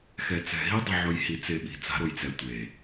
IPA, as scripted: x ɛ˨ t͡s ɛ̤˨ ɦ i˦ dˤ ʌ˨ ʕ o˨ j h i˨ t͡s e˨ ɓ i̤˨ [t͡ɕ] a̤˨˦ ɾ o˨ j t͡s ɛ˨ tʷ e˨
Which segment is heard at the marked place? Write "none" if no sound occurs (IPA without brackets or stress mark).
t͡s